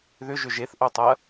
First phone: ð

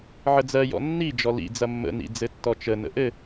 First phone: ʕ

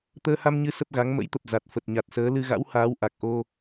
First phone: t̪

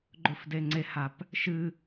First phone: ɡ͡ǃ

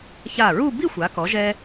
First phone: ç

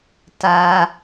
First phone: t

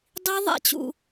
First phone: dˤ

